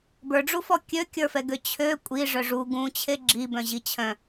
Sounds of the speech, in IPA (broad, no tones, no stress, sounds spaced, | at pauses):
b ə˞ ɖ͡ʐ u f ɔ kʲ ø kʲ ə˞ f ɛ ɡ ø t͡ɕʰ ø kʷʼ i ʐ œ ʐ u ɡ ũ t͡ɕʰ e ɡ͡ǁ i b œ̃ ʑ i t͡ɕʰ œ̃